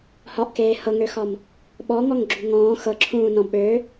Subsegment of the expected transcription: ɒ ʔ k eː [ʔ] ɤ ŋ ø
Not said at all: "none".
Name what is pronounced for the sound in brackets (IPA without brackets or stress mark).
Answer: h